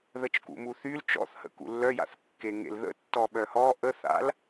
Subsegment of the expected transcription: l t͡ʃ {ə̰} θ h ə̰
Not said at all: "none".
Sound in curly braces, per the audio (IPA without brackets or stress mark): ɔ̰